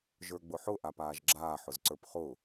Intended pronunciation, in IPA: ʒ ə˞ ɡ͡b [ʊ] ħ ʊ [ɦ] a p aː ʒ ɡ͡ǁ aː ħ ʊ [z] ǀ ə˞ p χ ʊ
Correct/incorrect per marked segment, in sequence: correct, incorrect, correct

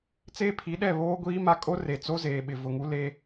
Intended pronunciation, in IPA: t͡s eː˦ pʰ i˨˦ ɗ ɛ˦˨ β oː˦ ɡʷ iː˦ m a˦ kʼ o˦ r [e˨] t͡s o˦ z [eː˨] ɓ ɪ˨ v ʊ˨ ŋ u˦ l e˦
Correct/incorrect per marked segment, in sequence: correct, correct

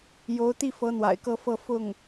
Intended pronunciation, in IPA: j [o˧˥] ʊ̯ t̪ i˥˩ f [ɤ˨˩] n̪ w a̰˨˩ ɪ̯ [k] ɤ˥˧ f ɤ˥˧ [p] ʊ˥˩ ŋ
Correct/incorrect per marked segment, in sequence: correct, incorrect, correct, incorrect

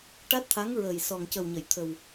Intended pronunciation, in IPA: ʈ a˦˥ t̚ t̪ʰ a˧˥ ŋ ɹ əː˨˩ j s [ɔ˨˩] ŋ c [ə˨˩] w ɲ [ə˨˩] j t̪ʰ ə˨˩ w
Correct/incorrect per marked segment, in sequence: correct, correct, incorrect

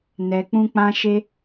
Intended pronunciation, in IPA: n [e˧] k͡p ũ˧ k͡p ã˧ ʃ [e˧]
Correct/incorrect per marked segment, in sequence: incorrect, correct

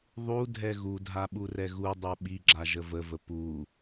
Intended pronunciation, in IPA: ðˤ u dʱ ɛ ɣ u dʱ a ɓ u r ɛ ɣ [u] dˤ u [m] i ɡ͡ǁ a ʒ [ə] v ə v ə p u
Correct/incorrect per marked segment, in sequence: correct, incorrect, correct

